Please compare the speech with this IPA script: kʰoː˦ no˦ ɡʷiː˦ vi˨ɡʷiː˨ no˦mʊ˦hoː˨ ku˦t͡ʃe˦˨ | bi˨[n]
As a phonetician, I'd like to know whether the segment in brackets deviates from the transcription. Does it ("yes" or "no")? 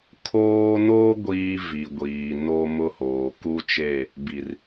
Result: yes